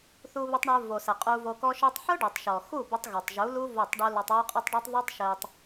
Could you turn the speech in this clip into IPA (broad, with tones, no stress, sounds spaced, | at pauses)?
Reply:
θ u˧ β ɘ˧ tˤ ɳ ə˞˧ v o˨ s ɘ˨ qʼ u˧ v o˧ k ɔ˦ ʃ ə˞˧ tˤ ħ ə˞˦ ɖ o˨ tˤ ʃ ɔ˨ x u˦˨ b ɘ˧ tˤ ɣ o˨ tˤ ʒ u˨˦ l u˦ v o˦˨ tˤ ɖ u˦ l ɔ˧ tˤ w o˦ qʼ ɘ˦ tˤ ɖ o˦ tˤ ðˤ u˦ tˤ ʃ ɘ˧ tˤ